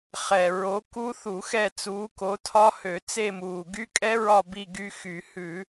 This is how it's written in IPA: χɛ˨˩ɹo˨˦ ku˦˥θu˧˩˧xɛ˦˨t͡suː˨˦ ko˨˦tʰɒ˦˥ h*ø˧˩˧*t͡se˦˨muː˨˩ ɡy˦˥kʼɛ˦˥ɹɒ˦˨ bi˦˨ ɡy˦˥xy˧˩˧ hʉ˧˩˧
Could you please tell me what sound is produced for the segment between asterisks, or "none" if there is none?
ø˧˩˧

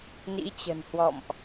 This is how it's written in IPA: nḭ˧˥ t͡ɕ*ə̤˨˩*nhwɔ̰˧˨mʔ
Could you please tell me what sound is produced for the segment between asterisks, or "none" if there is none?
ə̤˨˩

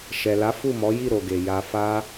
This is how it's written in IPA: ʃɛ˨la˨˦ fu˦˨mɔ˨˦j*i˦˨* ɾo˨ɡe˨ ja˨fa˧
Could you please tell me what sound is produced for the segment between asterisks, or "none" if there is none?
i˦˨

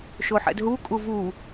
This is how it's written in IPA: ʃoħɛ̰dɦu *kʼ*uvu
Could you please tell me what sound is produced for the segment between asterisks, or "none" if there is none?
kʼ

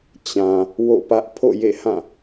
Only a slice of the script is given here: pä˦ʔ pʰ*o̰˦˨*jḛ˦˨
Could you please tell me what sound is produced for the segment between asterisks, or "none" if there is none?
o̰˦˨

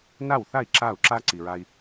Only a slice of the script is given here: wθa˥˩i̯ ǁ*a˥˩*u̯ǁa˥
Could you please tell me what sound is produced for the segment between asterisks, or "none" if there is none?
a˥˩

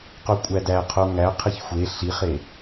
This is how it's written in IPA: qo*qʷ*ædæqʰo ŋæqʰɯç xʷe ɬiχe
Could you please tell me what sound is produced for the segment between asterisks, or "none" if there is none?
kʷʼ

